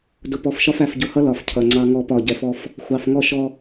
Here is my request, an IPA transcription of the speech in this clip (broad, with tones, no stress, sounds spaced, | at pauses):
d ʊ˨ p ɔ˨ f ʃ ɒ˦ f æ˨ f ɟ ʊ˨ h ʌ˦ l ɒ˨ f cʰ ʌ˨ ŋ͡ǀ ɑ˦ ŋ ɔ˦ p ɒ˦˨ ɟ ɛ˦ f ɔ˦ f | xʷ ɑ˨ f ŋ ɔ˦ ʃ ɔ˦